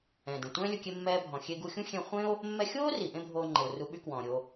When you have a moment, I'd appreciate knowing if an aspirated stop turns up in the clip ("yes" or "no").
no